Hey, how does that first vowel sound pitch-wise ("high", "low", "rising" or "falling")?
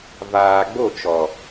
low